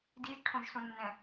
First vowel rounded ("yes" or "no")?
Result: no